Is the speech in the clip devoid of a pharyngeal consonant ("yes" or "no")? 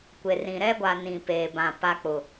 yes